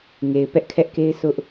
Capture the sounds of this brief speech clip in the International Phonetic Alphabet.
ŋe˨ɪ̯ pɛ˦ʔkʰɛ˦ʔke˦ɪ̯ sʊ˦ʔ

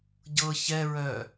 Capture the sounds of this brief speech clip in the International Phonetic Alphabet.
ɟɤ çɛɹœ

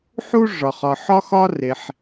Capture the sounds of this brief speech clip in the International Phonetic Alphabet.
ħu˦ ʐɒ˨χ ɒ˨ħɒ˦xɒ˦ re˨ħ

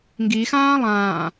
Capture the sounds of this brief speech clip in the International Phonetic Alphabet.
ŋɡixãː lˠãː

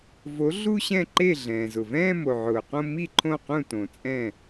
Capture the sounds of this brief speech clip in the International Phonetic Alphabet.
vo˩˥ ɮu˥˧ɕɛ̃˥˩ǃe˥˩ ɮɛ̃ː˩zʊ˩vɛ̃ː˥˧ mo˩ʕʊː˩qõ˥˧ mi˥˩ ǃʰõ˥˩qũ˥˩tõ˩ t͡sʼɛ̃˥˩

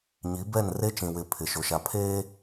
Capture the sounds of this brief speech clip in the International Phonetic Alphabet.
ɲi˨˦bɛ˦˨n re˦t͡ʃĩ˨wɪ˨˦ pʰɪ˨ʃo˨ʃa˨pʰeː˦

